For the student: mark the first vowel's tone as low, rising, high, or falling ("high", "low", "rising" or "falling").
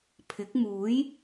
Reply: rising